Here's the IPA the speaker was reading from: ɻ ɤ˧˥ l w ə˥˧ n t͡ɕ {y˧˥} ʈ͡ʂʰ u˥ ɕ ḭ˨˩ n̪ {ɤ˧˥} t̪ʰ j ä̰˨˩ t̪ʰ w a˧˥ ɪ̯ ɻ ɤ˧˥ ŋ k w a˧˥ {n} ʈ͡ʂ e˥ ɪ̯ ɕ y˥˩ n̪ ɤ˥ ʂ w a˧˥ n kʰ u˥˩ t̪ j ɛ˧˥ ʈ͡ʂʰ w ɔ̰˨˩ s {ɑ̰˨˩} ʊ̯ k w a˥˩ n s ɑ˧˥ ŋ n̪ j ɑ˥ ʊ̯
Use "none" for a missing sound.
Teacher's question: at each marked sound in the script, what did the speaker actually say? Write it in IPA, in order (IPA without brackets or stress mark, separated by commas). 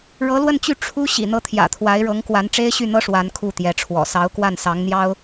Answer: y˥˩, ɤ˧˥, n, ɑ˧˥